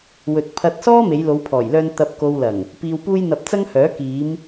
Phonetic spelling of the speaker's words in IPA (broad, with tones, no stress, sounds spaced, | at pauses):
w ɵ˨ t̚ pʰ ɐ˧ t̚ s ɔː˥ m e˨˧ j l o˨˧ w pʰ ɔː˨˩ j l œː˧ n t̪ ɐ˨ p̚ k o˨ w l ɐ˨˩ ŋ | p iː˧ w p uː˥ j n̪ ɐ˧ p̚ t͡s ɐ˥ ŋ h œː˨˥ k iː˨˧ m